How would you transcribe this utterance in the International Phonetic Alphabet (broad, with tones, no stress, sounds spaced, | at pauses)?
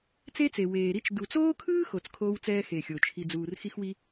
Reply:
t͡s e˦ t͡s e˨ w eː˨ ɾ i˦ t͡ʃ d u˨ t͡s oː˦ kʰ ɯː˦ x o˨ t͡s kʰ oː˦ w t͡s ɛː˦ x e˨ xʲ o˨ t͡ʃʰ i˨ d͡z uː˨ r x i˦ x w i˦